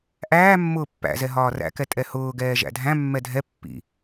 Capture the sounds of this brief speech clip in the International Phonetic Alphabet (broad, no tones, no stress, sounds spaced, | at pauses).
ʔ æː mː ʊː pː æ̰ z ɛ ɦ ɒː r æ̰ k ɛ tʼ ɛ h ʊː ɡ ɛː ʒ æ̰ dʱ æ̃ mː ɛ dʱ ɛ pː ḭ